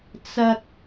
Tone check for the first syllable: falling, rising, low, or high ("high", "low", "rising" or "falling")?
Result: high